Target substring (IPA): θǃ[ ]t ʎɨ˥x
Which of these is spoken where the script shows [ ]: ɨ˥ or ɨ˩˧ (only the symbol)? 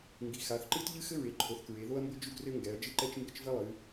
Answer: ɨ˥